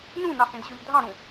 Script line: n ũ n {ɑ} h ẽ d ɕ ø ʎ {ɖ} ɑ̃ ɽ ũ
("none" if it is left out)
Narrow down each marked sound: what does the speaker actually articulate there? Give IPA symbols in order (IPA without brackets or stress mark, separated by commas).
ɑ, dʱ